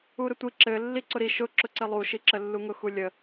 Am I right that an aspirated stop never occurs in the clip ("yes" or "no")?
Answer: yes